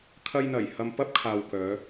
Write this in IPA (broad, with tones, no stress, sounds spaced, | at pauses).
kʰ ɐ˧ j n̪ ɐ˨˩ j h ɐ˧ m p ɐ˥ p̚ kʰ aː˨ w k œː˨˧